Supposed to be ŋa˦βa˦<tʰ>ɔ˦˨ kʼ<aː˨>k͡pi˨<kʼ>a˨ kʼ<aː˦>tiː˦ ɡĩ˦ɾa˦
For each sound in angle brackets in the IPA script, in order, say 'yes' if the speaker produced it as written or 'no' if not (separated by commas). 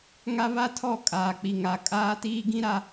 yes, yes, no, yes